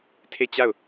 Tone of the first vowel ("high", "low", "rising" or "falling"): falling